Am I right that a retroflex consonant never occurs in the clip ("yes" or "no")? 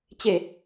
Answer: yes